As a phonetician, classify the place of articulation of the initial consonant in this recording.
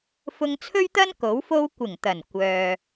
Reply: labial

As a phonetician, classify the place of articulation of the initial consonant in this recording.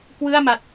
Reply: velar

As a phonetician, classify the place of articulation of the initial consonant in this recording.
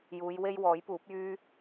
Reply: palatal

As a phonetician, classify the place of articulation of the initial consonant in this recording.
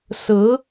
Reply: alveolar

